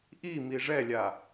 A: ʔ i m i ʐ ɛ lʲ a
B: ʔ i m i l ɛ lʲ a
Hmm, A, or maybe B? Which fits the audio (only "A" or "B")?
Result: A